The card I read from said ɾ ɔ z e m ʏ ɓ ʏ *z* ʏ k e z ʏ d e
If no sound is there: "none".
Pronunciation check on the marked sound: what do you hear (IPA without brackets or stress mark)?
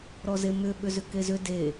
z